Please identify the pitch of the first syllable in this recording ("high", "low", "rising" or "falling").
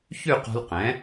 falling